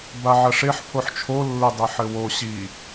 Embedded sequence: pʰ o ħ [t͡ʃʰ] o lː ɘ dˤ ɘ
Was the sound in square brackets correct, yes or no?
yes